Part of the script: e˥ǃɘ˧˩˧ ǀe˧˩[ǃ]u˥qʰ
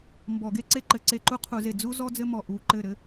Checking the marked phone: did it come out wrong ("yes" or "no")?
no